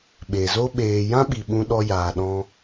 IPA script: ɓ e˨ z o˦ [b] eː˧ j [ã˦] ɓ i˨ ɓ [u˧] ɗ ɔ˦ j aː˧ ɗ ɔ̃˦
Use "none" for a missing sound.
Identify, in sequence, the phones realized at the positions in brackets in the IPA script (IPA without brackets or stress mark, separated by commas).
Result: ɓ, ã˦, ũ˧